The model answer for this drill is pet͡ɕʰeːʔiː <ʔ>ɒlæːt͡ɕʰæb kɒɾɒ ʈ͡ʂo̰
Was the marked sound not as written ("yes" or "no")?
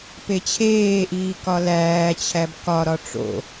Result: yes